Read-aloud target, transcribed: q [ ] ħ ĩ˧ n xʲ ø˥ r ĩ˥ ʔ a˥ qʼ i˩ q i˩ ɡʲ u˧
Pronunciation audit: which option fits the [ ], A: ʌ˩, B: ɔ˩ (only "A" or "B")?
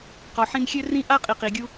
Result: B